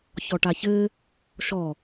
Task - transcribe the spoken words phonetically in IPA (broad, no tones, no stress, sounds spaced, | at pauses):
ç ɔ ʈ a ç ɘ | ʃ ɔ